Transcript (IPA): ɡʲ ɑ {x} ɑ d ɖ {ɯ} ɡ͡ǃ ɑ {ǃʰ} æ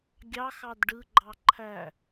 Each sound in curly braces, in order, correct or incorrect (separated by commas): correct, correct, correct